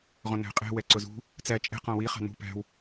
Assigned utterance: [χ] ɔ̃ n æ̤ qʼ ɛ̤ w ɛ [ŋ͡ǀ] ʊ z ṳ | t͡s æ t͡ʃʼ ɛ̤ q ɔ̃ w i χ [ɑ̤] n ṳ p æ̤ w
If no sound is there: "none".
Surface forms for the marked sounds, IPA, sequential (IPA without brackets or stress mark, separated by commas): ʁ, ǀ, ɑ̤